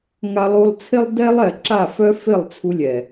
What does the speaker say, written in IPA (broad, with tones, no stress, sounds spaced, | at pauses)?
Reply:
ŋ a˧ lˠ u˧ lˠ t͡sʰ ɪ˦ lˠ d ɛ˦ lˠ ɛ˨ ǁ a˦˨ f œ˦ f ɪ˦˨ lˠ t͡sʰ u˧ lʲ ɛ˨